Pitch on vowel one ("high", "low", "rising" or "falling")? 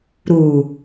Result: low